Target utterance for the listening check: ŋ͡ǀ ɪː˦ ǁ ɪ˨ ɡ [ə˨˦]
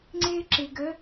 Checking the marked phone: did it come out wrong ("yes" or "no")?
no